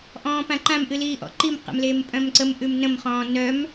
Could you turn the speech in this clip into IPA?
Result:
ʔ ɔ̃ː p ã ǃ ã m ʔ ɨ l iː ʔ ɔ̰ ǃ i m q ə̰ m l eː m pʼ œ̃ m ǀ ə m ʔ ʉ m n ə̃ m χ ɔ̃ː n œ m

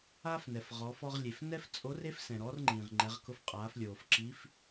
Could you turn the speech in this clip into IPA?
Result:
aː˥ f n ɛ˩ f ʁ ɔː˩˧ f ɔ˧ ʁ lʲ e˩ f n ɛ˥ f t͡sʼ o˧˥ r e˥ f s ɛ̃˩ ɾ ɔ˧˥ r ŋ͡ǃ ĩː˩ ʁ ŋ͡ǃ ɛ˩˧ ʁ k ʊ˧ f qʼ aː˩˧ f lʲ oː˩ f ǁ i˧˥ f

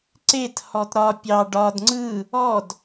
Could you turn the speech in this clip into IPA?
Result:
ǀ e t h ɔ t ɾ ɒ pʲ ɑ ɖ ɒ d ŋ͡ǀ ɯ | ɔ d

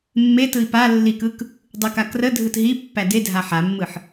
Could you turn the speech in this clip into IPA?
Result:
mː e t ɯ i̯ p a lː i k ɯ k | dˤ ɯ k a k r ə dʱ ɯ t ɦ i pː æ d e dʱ a ħ a mː ɯ ħ

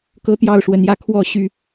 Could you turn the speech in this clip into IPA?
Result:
k ɤ˦ t̪ j ɑ˥˨ ʊ̯ ʂ w ə˨˦ n j ä˦ kʰ w ɔ˥˨ ɕ y˥˨

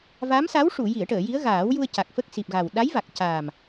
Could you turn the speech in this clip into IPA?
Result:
v a˧˥ m s a˧˥ w ʂ u˨˩˨ j i˨˩˨ ə̯ ʈ əː˨˩˨ j i˧˥ ə̯ ɣ aː˨˩˦ w j u˧ ə̯ c a˨˩ k̚ f ə˦˥ k̚ s i˨˩ p̚ ɣ a˨˩ w ɗ a˧˥ j v a˨˩ k̚ c aː˨˩ m

